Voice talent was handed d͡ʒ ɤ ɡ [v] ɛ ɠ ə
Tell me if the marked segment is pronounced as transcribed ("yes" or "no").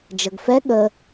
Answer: no